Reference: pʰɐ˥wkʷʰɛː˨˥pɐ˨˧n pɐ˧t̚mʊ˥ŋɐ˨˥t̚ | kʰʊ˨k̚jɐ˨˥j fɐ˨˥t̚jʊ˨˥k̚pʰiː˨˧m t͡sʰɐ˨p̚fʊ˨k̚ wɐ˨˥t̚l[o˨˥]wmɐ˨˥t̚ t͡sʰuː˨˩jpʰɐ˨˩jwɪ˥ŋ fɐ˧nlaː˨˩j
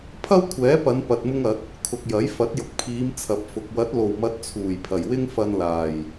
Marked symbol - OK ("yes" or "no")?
no